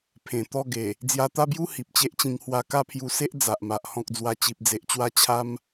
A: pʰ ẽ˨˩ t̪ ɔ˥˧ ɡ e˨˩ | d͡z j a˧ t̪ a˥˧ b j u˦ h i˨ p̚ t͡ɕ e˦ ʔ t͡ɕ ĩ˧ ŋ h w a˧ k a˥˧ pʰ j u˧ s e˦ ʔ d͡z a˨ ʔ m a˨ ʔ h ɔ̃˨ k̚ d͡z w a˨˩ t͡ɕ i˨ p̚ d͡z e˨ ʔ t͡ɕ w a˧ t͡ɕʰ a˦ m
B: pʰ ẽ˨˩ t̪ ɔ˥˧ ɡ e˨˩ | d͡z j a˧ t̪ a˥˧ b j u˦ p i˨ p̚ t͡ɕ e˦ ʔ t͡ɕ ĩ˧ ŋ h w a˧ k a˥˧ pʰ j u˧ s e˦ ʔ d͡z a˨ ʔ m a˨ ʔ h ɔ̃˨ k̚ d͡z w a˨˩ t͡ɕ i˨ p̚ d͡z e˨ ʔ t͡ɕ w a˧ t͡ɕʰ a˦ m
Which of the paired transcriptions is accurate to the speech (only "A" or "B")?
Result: A